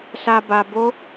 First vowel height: low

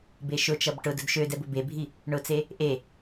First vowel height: mid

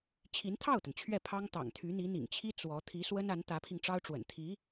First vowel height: high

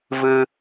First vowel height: high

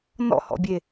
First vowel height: mid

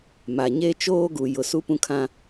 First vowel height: low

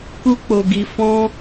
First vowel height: high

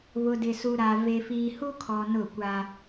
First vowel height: high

